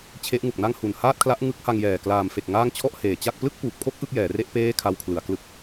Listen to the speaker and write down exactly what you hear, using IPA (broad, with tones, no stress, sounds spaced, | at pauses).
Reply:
t͡ɕʰ e˦˥ ʔ ŋ u˨˩ k̚ n a˥˩ ŋ h u˨˩ n h aː˥˩ t̚ kʰ l a˦˥ ʔ ŋ ɯ˦˥ k̚ h a˧ ŋ j ɛː˨˩ k l aː˨˩ m f e˨˩ k̚ ŋ aː˥˩ ŋ t͡ɕʰ ɔ˥˩ ʔ h eː˩˦ t͡ɕ a˥˩ k̚ p l ɯ˥˩ k̚ p uː˨˩ p̚ kʰ o˥˩ k̚ ʔ ɯ˥˩ k̚ j ɛː˩˦ r e˥˩ ʔ p eː˥˩ kʰ a˧ w kʰ l ɯ˩˦ a̯ k l ɯ˦˥ k̚